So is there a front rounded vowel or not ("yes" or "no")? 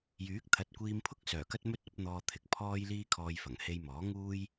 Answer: yes